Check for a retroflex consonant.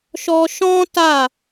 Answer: absent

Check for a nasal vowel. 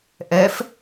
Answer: absent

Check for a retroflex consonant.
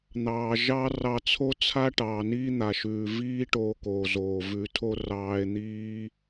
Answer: present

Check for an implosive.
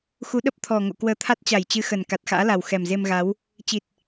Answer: present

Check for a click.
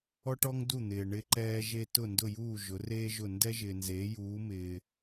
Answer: present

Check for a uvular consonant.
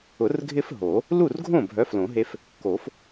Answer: absent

